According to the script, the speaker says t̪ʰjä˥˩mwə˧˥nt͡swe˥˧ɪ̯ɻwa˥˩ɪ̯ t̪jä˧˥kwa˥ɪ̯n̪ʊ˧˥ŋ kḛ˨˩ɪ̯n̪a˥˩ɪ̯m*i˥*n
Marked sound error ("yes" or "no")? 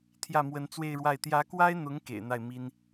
no